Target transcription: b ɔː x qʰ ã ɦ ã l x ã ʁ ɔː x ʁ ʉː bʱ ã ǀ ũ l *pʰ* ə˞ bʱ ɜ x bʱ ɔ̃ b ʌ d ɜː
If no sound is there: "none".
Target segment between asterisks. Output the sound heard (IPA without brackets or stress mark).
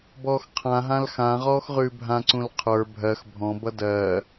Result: qʰ